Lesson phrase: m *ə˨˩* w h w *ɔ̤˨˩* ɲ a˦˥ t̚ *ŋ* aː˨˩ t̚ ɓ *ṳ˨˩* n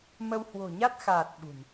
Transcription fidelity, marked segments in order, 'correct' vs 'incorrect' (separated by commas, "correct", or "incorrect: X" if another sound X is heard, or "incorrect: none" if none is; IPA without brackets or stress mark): incorrect: ə˧, incorrect: o̤˨˩, incorrect: x, correct